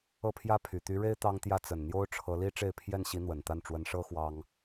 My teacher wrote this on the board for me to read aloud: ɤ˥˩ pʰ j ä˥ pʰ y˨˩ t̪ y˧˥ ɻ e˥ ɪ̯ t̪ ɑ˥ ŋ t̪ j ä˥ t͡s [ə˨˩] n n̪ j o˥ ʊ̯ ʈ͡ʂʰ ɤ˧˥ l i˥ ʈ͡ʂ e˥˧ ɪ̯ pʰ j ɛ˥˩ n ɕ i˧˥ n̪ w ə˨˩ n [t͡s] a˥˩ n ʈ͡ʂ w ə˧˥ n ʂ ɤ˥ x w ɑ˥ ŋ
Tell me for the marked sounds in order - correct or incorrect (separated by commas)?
correct, incorrect